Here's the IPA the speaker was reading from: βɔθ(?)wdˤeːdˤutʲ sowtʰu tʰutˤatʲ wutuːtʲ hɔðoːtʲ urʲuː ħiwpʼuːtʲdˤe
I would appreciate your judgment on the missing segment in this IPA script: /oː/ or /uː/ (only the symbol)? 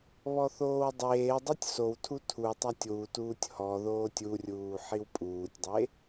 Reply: oː